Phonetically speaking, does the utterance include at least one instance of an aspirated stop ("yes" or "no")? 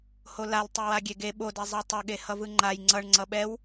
no